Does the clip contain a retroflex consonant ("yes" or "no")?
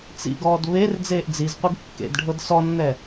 yes